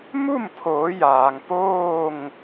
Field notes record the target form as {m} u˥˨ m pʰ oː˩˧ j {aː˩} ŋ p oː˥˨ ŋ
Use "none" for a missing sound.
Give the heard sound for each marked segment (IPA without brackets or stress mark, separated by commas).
m, aː˩